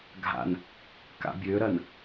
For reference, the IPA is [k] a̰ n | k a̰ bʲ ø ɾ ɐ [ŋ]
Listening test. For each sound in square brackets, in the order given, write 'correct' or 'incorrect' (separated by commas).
incorrect, incorrect